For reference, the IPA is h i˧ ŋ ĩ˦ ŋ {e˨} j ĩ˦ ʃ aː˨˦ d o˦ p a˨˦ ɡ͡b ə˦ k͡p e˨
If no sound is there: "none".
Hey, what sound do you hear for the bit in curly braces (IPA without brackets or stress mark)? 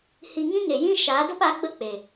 e˨